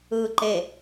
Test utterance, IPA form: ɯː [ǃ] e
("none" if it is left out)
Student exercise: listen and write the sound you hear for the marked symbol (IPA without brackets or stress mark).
ǃ